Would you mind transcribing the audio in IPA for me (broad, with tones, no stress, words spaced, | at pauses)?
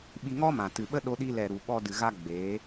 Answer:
ɓi˧ŋɔ˦mã˨ tɨ˨ɓə˦ ɗo˧ɗi˧lɛ˨ɾu˨ ɓɔ˧dɨ˨ ɣa˦ɡ͡beː˨˦